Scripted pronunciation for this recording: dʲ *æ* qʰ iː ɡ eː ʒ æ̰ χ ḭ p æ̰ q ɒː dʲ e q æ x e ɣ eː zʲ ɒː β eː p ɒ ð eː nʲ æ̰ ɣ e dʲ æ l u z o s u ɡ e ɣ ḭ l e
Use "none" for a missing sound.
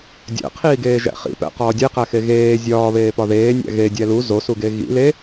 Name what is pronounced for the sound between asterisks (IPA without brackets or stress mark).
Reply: æ̰